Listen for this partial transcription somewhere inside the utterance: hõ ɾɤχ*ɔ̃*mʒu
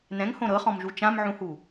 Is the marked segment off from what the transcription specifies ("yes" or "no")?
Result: no